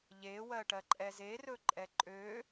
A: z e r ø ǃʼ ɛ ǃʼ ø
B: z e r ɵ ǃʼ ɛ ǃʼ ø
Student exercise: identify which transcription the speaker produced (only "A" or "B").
B